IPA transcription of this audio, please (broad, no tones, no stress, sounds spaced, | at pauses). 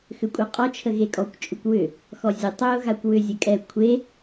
x ʏ kʷʼ ɛ qʼ ɔ t͡ʃʰ ə ɣ e kʼ ɔ kʷ t͡ʃʼ ʏ kʷ w ʏ | x ɔ zʲ ə tˤ ʏ ʊ̯ ɣ a kʷ w ʏ zʲ ə kʼ ɛ kʷʰ e